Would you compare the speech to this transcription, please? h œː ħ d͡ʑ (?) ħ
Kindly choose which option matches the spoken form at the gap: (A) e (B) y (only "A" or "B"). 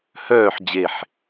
A